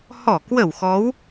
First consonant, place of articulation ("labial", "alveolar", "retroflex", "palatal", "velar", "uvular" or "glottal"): glottal